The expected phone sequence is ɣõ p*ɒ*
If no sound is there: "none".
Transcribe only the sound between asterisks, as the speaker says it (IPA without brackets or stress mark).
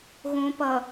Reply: ʌ